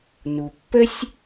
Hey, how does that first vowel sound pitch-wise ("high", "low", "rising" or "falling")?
low